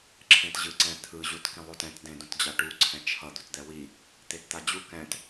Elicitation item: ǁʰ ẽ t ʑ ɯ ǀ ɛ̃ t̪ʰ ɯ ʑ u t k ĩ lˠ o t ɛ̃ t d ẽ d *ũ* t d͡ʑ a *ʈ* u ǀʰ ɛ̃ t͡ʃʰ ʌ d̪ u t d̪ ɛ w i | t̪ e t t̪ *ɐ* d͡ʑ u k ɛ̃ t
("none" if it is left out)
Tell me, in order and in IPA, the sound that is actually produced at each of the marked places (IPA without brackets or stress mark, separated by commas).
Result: õ, ʈ, a